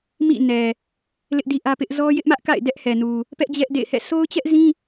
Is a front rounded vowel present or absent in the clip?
absent